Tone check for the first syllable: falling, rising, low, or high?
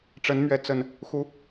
rising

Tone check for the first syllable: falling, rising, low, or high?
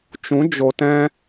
rising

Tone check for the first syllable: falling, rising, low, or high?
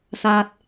low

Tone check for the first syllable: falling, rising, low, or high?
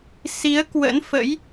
rising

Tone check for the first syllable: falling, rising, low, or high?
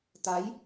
rising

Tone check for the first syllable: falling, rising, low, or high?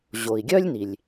low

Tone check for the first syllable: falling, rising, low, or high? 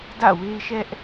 falling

